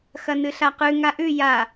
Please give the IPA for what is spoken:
x ɐ n ɨ ɬ a q ʉ ŋ a ʔ ʉ j a

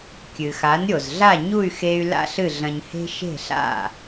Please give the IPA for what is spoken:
kʲ ɨ˩ x a˩˥ n ɾʲ o˩ z ɮ a˥˩ ɲ u˥˩ y̯ x e˧ y̯ l a̰˥ ɬ ɨ˥˩ ɮ ɐ̃˧ ɲ h e̤˥ ʃ e̤˥˩ ɬ a̰˥˩

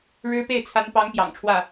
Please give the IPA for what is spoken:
ɻ ɻ̩˥ p e˥˩ ɪ̯ t͡sʰ a˧˥ n p ɑ˧˥ ŋ p j ɑ̰˨˩ ŋ ʈ͡ʂʰ w ä˥˩

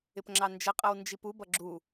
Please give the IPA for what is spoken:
ɪ p ŋ͡ǁ ɑ n d͡ʒ ə qʼ ʌ w n d͡ʒ i p u b ʌ ɡ͡ǁ u

